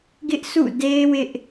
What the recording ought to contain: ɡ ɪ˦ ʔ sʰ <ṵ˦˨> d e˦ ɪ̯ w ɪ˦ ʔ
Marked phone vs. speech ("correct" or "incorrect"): correct